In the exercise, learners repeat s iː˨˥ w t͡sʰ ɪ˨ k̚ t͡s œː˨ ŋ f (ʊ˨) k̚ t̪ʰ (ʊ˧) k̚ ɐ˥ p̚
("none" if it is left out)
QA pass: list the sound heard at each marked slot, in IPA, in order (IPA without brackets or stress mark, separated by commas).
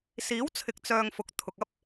ʊ˨, ʊ˨